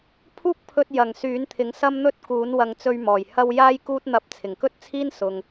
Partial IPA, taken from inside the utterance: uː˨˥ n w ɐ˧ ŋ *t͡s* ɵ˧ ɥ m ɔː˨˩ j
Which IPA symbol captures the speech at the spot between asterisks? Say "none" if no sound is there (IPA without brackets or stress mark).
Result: t͡s